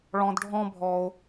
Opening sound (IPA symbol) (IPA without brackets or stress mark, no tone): ɭ